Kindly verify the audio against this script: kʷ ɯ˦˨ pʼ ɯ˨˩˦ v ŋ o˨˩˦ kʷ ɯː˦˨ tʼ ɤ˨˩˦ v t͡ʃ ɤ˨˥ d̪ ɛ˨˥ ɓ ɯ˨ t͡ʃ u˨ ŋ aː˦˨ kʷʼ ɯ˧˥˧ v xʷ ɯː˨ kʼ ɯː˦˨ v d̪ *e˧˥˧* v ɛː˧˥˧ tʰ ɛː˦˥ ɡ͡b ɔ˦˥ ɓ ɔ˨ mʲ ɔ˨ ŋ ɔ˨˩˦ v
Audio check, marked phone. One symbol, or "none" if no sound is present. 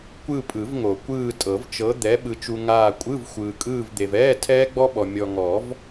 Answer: e˨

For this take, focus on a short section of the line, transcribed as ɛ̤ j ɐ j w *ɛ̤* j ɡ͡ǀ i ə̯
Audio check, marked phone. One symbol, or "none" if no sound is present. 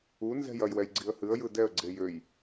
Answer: ɛ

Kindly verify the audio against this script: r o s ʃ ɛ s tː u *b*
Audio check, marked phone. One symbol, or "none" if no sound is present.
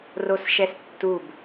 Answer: b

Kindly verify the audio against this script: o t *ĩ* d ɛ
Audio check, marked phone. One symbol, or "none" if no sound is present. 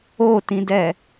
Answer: ĩ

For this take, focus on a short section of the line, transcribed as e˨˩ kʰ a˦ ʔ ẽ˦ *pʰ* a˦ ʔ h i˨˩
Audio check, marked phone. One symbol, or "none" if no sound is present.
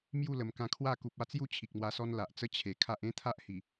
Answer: t̪ʰ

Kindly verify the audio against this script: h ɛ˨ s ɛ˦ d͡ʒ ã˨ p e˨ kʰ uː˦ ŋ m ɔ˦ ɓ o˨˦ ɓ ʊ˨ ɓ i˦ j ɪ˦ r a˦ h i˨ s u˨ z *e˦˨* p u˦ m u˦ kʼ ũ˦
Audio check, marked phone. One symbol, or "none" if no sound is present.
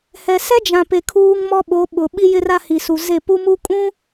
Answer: e˦˨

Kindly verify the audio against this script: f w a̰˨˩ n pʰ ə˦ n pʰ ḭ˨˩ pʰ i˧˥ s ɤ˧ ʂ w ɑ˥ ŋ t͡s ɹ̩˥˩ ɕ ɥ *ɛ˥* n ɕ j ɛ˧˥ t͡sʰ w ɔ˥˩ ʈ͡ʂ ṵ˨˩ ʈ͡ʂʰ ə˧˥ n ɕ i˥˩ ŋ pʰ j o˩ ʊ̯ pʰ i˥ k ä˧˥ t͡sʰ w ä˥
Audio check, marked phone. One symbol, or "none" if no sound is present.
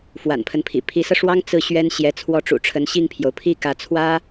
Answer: ɛ˥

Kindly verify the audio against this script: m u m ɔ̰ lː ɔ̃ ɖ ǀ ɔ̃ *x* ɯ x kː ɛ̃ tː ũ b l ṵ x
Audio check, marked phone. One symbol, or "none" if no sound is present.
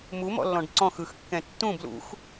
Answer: x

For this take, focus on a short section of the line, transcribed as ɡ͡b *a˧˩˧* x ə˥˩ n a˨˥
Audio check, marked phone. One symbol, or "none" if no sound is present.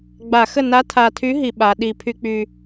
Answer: a˧˩˧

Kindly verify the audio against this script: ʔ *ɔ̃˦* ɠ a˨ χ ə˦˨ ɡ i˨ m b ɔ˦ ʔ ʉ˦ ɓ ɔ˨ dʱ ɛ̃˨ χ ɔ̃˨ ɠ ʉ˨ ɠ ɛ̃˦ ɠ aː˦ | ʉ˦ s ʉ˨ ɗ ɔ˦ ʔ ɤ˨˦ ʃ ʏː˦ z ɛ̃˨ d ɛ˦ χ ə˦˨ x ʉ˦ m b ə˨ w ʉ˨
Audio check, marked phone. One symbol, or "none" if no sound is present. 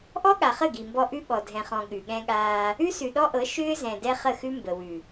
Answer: ɔ˦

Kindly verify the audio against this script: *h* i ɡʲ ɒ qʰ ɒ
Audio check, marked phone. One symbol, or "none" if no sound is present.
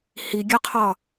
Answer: h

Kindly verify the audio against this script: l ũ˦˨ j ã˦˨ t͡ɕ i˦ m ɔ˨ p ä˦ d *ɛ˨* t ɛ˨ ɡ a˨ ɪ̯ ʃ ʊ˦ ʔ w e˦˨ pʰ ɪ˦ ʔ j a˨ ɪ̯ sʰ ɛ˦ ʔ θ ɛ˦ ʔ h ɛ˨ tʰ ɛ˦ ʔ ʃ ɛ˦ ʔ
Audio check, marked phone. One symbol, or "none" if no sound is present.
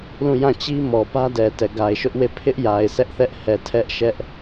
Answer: ɛ˨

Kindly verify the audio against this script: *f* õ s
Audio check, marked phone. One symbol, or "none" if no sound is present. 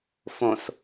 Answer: f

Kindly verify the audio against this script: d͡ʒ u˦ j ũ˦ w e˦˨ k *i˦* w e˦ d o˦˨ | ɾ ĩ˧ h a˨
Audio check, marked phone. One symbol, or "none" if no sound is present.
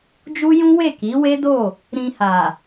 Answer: i˨˦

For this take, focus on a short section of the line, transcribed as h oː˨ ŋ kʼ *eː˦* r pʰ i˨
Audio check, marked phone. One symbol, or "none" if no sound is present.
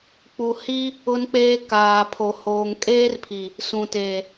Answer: eː˦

